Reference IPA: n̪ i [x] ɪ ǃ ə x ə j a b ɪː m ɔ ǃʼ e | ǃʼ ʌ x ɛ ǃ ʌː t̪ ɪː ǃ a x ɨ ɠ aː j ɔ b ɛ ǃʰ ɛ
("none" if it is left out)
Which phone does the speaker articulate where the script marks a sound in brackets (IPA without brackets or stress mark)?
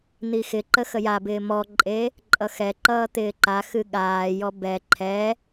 x